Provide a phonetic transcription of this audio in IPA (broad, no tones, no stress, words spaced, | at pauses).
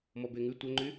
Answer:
mɔbeŋʉ tʷœŋ͡ǃy